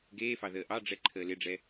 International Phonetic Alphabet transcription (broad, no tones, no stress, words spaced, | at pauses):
ɡeːfɑ ðəːʔɑɖ͡ʐɛ ǃʰəːlɪɖ͡ʐɛ